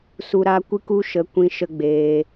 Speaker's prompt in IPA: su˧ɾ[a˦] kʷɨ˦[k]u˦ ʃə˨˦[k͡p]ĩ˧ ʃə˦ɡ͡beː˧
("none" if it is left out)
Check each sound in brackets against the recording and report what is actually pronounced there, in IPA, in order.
a˦, k, kʷ

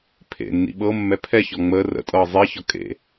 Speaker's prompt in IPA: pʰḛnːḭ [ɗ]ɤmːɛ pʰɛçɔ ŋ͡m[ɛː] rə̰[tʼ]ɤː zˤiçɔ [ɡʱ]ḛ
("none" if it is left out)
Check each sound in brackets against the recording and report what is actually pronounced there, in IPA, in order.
ɓ, əː, tʼ, kʼ

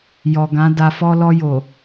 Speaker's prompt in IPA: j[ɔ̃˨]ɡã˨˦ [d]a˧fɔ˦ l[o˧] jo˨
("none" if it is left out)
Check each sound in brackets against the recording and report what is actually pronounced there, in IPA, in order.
ɔ˨, d, ɔ˧

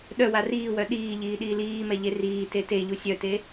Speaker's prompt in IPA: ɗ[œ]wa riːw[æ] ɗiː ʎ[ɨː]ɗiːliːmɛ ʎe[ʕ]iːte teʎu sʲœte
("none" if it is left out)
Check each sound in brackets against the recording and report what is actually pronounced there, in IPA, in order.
œ, œ, iː, r

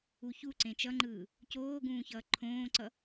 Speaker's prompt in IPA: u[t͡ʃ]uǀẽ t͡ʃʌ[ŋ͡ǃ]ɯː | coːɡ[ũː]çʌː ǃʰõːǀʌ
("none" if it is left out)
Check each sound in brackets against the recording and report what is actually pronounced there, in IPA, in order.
ç, ŋ͡ǃ, ũː

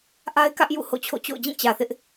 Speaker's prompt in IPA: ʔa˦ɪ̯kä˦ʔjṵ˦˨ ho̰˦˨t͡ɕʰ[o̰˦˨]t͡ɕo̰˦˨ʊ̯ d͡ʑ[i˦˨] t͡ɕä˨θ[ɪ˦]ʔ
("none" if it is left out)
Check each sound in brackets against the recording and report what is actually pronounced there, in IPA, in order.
o̰˦˨, ĩ˦˨, ɪ˦

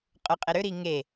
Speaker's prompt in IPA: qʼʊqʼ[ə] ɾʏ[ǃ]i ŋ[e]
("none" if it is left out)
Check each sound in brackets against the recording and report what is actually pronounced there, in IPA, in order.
ɪ, ɾ, e

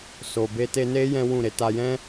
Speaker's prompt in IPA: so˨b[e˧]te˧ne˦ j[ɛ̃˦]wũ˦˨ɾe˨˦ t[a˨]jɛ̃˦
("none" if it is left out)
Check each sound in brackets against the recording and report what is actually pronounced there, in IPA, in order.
e˧, ɛ̃˦, a˧

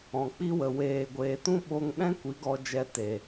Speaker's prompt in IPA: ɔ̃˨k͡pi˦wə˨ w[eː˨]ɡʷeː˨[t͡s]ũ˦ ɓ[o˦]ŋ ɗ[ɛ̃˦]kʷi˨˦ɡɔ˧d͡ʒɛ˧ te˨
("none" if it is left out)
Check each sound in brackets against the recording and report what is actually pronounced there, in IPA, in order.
eː˨, t, o˦, ɛ̃˦

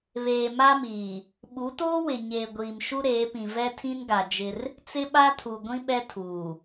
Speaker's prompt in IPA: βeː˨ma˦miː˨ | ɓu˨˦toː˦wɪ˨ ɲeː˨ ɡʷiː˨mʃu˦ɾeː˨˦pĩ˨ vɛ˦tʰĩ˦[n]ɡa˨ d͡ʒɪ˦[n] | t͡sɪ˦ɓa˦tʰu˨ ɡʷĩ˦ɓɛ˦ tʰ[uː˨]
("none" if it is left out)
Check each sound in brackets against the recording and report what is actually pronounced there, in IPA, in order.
n, r, uː˨

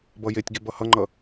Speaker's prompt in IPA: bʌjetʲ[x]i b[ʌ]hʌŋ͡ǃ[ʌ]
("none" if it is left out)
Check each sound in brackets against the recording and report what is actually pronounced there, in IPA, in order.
ɡ, ʌ, ʌ

